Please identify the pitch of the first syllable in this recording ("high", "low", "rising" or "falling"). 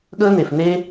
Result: high